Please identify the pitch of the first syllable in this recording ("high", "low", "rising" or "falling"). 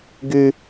high